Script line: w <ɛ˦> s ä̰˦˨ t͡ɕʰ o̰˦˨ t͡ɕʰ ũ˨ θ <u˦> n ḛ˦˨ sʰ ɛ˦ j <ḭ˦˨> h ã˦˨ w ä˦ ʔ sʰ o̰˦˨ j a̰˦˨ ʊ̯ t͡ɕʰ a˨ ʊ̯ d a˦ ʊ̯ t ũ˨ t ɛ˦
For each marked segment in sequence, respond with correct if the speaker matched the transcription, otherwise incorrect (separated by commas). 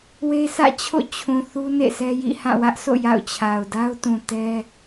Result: incorrect, correct, correct